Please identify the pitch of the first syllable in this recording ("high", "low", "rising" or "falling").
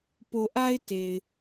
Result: low